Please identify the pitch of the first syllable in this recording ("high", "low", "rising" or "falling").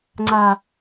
low